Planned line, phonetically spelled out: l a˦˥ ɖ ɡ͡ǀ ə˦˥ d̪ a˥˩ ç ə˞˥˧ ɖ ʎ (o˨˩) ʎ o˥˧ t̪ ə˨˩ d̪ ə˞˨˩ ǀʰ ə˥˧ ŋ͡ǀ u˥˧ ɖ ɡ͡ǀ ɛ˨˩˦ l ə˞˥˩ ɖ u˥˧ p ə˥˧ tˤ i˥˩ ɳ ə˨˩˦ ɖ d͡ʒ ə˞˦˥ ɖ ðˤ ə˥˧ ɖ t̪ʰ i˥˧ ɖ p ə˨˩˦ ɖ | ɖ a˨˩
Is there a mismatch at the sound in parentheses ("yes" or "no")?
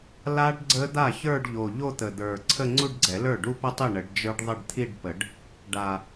no